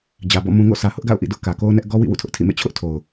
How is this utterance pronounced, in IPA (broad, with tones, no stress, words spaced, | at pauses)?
d͡ʑä˨bɔ̰˦˨ mũ˨ ŋo̰˦˨sʰä˨ hʊ˦ʔɡa̰˦˨ʊ̯ʔḭ˦˨dʊ˦ʔ kä˨ko˦ʊ̯nɛ˦ʔ ɡɔ˦wḭ˦˨ wṵ˦˨tʰʊ˦ʔtʰḭ˦˨mḛ˦˨ t͡ɕʰʊ˦ʔ tʰo˨ʊ̯